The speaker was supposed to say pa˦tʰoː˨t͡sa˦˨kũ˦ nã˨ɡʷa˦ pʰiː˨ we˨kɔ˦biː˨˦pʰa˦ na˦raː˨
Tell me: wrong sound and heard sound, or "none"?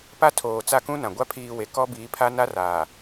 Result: none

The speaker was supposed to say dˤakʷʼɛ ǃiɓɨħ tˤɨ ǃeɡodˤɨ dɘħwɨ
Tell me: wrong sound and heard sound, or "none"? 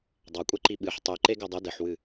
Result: none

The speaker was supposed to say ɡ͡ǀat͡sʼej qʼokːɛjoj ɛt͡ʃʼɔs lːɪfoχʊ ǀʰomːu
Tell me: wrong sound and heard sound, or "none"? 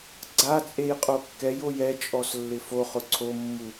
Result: none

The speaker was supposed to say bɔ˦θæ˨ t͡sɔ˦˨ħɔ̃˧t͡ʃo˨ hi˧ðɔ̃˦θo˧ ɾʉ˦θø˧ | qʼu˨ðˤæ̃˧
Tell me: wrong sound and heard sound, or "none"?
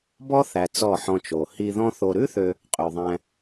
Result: u˨ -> ø˨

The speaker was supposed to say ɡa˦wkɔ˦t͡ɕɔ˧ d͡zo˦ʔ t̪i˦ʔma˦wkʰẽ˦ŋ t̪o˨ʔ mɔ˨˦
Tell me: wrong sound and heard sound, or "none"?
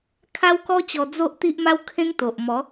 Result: ɡ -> kʰ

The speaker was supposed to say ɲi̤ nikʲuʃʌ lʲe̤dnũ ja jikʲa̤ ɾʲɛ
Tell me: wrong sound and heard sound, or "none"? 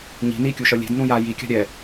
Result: none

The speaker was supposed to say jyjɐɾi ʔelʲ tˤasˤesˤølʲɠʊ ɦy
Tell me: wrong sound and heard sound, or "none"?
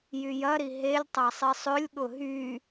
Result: ʔ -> ɦ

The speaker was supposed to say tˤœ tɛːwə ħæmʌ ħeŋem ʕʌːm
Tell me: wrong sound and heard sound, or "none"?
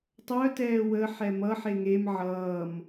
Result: æ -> ɛ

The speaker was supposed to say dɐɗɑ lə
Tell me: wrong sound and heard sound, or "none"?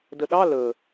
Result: ɐ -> ə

